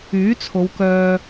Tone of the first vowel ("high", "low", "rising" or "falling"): rising